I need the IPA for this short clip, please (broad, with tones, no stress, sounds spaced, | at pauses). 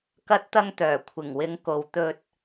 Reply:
k ɐ˧ t̚ t̪ ɐ˧ ŋ t̪ œː˨˩ kʷʰ ɪ˨˩ ŋ w ɪ˨˥ ŋ k o˨ w t̪ ɵ˧ t̚